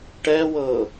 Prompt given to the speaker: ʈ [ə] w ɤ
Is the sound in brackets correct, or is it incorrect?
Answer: incorrect